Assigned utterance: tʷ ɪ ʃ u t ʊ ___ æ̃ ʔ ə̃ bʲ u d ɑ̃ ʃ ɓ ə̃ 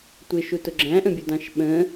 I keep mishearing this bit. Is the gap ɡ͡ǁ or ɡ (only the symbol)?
ɡ͡ǁ